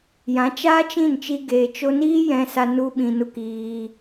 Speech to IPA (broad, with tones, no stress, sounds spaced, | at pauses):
j ã˨˦ t͡ʃ aː˦ t͡ʃ ĩ˦˨ n t͡ʃ i˧ ɡ eː˨ t͡ʃ o˧ n iː˦ j ɛ̃˦ s a˦ n u˦ ɓ ĩ˧ n u˦ k iː˧